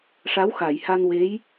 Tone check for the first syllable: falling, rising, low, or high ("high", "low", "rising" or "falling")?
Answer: rising